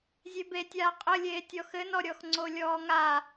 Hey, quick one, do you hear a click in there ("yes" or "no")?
yes